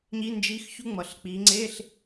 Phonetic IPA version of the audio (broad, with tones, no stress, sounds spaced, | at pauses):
ɲ i˧˥˧ n d͡ʒ i˧˥˧ x ç u˥ ŋ͡m ʌ˨˩ ɬ k͡p i˨˦ ŋ͡ǀ e˧˥˧ ɬ